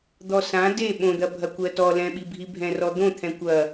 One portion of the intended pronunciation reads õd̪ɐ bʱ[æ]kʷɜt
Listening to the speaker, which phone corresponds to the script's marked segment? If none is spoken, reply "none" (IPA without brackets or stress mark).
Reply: ɐ